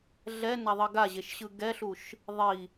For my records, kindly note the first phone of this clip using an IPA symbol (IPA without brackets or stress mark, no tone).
ɮ